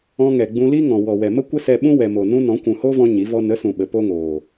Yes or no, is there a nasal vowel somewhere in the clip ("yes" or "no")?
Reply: yes